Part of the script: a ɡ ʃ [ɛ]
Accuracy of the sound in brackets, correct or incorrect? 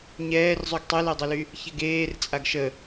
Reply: incorrect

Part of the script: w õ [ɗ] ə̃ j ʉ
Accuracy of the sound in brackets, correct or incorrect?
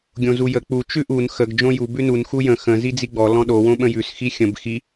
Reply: incorrect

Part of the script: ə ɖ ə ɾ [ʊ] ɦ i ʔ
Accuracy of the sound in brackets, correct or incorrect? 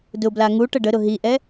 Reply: correct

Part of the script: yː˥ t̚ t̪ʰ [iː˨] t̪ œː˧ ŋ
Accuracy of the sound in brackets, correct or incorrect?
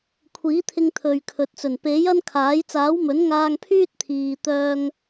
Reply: correct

